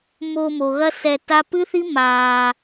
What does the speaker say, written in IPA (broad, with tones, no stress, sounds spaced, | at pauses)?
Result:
m o˧ m o˨ ɣ ɐ˦ s ɛ˧ t a˦ p ɨ˦ θ i˦ m aː˧